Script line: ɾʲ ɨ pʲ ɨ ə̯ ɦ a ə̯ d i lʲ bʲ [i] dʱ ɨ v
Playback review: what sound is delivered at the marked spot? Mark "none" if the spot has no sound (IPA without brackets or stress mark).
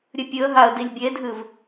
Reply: e